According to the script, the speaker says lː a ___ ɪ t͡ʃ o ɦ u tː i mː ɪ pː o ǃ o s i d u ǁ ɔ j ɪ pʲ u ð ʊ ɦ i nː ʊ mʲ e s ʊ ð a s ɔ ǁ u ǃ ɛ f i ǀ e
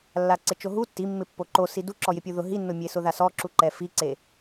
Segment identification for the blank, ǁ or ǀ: ǀ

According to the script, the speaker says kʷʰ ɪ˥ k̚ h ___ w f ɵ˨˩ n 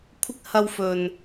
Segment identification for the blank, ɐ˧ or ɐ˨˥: ɐ˧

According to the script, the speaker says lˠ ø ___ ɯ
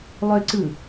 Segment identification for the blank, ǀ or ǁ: ǀ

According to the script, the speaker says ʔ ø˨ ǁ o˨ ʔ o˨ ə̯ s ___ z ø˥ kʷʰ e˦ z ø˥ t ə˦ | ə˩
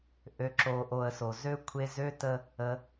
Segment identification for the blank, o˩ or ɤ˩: o˩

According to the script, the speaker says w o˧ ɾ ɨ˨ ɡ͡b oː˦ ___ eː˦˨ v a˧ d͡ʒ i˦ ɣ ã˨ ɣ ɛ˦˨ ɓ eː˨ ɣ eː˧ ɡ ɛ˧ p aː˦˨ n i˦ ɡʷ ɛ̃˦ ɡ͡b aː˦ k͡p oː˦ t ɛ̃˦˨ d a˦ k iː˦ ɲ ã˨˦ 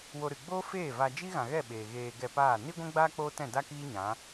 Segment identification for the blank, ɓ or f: f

